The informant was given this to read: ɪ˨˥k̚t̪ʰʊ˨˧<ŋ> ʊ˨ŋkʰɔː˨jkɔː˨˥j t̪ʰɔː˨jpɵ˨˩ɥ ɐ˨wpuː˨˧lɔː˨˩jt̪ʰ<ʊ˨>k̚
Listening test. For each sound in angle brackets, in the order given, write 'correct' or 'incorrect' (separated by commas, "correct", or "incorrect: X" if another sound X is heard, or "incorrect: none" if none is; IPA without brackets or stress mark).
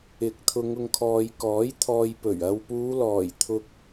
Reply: correct, correct